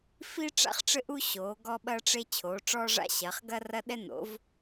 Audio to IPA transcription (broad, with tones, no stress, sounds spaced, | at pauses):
f i˥ ʈ͡ʂ a̰˥ χ ʈ͡ʂ ɘ˥ ʔ u˥ ɕ oː˩˥ ɡ ɔ˥ ɓ ɐː˥ ʈ͡ʂ e˥ t͡ɕʰ oː˩˥ ʈ͡ʂ ɔː˥ ʐ a̰˥ ɕ ɐː˩˥ χ ɡ ɐ˥ r ɐ˥ ɗ ɛ˥ n o̰˩˥ v